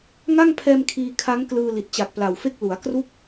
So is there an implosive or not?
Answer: no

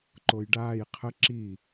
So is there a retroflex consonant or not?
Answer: yes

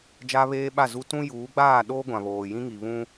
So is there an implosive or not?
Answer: yes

